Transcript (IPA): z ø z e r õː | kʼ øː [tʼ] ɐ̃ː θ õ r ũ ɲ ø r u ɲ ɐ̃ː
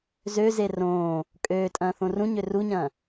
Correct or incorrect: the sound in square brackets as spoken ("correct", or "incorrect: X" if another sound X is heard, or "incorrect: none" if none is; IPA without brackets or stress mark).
correct